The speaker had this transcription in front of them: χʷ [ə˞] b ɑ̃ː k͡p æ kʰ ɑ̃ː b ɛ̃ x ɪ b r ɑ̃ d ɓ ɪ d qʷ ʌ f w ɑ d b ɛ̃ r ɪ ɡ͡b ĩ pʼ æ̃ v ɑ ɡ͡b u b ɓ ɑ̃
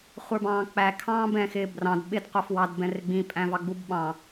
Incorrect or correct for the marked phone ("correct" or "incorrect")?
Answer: correct